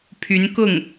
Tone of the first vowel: rising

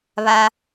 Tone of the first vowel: high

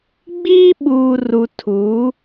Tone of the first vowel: high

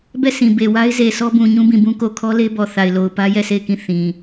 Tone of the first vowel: falling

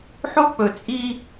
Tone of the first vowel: high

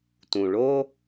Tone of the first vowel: low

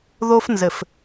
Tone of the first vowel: high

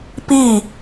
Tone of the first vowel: falling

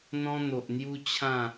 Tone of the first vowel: high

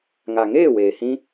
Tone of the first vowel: low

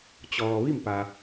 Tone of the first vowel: low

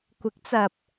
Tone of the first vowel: rising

